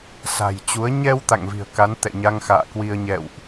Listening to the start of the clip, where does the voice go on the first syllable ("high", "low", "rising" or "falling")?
low